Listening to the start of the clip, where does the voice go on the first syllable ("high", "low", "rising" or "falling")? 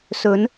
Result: rising